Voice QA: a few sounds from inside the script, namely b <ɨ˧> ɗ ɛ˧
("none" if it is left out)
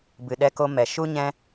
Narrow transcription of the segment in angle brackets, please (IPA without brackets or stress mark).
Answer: ɨ˨